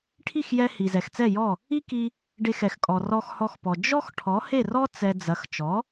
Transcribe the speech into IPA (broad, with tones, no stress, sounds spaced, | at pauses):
ʈʰ i˥˩ x j ɛ˧ h i˩ z ɛ˩ x t͡s ɛ˥˩ j ɔ˥˩ | i˥ k i˧ | ɖ e˧ x ɛ˩ x kʼ ɔ˩ r ɔ˧ x h ɔ˧ x p ɔ˩ d͡ʒ ɔ˥ x ʈʰ ɔ˩˥ h e˥˩ r ɔ˥ t͡s ɛ˧ d͡z ɐ˩˥ x t͡ʃ ɔ˩˥